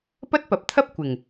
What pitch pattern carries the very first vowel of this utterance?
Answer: high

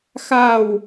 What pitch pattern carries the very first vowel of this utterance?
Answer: falling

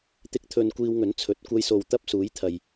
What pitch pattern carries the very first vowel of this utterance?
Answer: high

